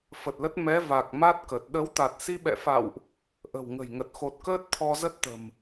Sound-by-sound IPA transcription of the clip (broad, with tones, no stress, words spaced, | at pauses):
fə˨˩t̚lə˦˥t̚ mɛ˨˦va˨˩k̚ ma˦˥t̚kə˨˩t̚ ɗə˨˦w t̪a˨˩t̚si˧ɓɛ̰˧˨fa̰˧˨wʔ | ʔə̤˨˩wŋə̤˨˩jŋə˨˩t̚xo˨˩t̚ kəː˦˥t̚t̪ʰɔ˧zə˦˥t̚t̪ə̤˨˩m